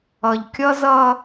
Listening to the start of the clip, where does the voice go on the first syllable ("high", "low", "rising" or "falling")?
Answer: low